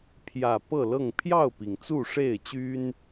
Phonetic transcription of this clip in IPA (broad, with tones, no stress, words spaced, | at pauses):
pʰjä˨˩ pɤ˥˨lɤ˥˨ŋ pʰjɑ˥˨ʊ̯pi˩ŋ t͡su˥˨ʂe˥˨ɪ̯t͡ɕy˦n